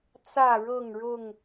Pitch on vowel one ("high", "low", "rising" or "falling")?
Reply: falling